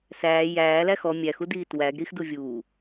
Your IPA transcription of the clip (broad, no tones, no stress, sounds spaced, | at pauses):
s æː j æː l æ x ɔ mʲ æ x u d iː t w æ ɡ ɾ i x d u vʲ uː